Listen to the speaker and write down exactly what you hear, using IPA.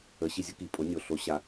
ə˩˧ ɕ i˩ zʲ ʊ˧ k i˩ pʼ o˩˧ nʲ o˩ ɬ o˩˧ ɕ a˩

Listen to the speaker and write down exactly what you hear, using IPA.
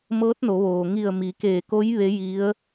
m ɤː˧˥ t̚ n o˩˧ ʋ oː˩ ŋ i˧˩ ə̯ m i˩˧ k eː˧˩ k o˧˥ j ʋ e˧˥ j i˧˥ ə̯

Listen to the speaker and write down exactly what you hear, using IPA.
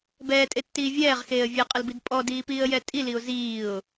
b ɛː tʼ e tː iː vʲ ɛː ʁ x eː ə̯ vʲ e qʼ ə l b i d pʼ ɔ d iː p iː ə̯ j ɛ tʼ i l i ʊ̯ z iː ʊ̯

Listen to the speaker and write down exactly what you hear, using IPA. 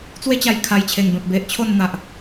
t͡s w e˦ t͡ɕ a˨˩ j kʰ a˨˩ j t͡ɕʰ e˨˩ ŋ b ẽ˨ p̚ b e˨ ʔ t͡ɕʰ o˥˧ n n̪ a˨ ʔ

